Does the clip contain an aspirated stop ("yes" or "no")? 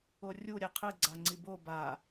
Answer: yes